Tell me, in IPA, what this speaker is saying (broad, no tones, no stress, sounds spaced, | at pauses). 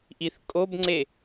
ʔ i θ kʼ o b ŋ͡ǀ e